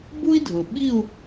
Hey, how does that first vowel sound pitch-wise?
high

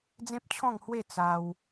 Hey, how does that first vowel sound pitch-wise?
high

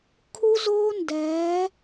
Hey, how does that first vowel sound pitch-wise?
high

